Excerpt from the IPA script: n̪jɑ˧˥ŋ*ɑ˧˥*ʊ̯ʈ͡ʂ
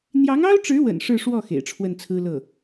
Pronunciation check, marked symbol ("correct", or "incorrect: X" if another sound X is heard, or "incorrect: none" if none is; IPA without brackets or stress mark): incorrect: ɑ˥